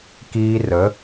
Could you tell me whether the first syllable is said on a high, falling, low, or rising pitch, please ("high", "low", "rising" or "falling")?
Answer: high